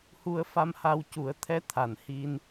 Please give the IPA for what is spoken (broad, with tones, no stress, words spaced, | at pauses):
hu˧ə̯fa˧mha˧w cu˨˩˦ə̯t̪ʰɛ˧˥ t̪ʰa˨˩nhi˧n